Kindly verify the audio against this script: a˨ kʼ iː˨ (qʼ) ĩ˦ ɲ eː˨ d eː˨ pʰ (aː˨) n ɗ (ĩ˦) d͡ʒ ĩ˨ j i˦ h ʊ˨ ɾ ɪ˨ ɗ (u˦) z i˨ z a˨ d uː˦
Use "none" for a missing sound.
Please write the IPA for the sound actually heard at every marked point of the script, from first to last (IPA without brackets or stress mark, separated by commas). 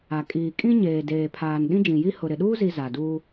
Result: kʼ, aː˨, ĩ˦, uː˦